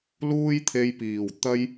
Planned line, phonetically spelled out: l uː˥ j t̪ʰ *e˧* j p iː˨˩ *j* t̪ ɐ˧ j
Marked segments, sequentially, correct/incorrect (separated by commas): correct, incorrect